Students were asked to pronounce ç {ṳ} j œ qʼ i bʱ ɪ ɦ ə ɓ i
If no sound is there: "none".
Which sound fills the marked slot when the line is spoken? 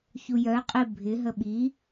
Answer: u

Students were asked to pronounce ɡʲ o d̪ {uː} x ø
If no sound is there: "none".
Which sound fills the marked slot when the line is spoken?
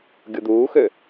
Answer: uː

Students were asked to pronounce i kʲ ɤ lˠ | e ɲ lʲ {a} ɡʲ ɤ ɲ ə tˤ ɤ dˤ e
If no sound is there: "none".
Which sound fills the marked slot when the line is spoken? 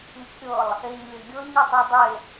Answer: ə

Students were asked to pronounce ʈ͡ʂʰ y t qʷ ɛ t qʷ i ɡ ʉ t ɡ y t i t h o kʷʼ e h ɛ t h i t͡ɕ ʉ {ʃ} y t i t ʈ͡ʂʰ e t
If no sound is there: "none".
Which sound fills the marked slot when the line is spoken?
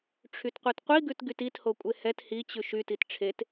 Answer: ʃ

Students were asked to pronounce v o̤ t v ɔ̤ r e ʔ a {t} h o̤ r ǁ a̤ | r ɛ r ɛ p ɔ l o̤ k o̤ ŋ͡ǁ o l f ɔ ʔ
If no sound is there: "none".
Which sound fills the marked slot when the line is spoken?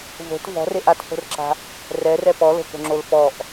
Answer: t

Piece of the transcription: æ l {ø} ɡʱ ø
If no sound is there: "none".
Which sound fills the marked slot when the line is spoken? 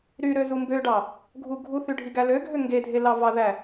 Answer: ø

